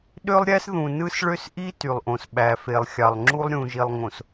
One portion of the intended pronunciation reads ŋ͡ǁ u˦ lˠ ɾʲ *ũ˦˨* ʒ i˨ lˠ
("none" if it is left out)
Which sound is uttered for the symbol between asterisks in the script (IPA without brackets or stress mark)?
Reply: ũ˨